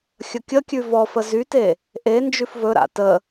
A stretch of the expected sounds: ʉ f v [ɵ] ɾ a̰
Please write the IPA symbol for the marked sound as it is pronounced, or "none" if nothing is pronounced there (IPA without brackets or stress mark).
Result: ɵ